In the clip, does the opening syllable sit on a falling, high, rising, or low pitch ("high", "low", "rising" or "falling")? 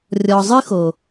low